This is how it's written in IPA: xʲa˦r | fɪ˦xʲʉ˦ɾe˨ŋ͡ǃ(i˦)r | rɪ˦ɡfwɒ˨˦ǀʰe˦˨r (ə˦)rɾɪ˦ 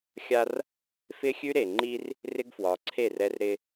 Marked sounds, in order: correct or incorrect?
correct, incorrect: ɛ˦

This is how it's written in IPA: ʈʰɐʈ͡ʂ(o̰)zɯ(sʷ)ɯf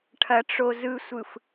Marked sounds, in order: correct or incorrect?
incorrect: o, correct

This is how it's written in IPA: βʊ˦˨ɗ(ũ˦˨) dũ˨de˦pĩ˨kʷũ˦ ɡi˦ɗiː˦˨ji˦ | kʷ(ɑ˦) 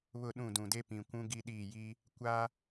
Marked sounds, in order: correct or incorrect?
correct, incorrect: a˦

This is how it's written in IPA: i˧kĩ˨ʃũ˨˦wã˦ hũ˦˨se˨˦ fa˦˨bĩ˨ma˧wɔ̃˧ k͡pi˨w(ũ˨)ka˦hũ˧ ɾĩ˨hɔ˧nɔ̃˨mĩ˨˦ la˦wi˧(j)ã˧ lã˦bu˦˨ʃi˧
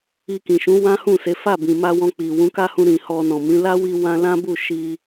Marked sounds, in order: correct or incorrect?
incorrect: ũ˨˦, incorrect: w

